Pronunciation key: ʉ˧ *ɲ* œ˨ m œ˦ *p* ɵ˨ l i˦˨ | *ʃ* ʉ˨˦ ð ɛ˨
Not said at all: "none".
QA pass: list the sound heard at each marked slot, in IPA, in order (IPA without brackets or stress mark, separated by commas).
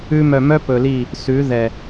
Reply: m, p, s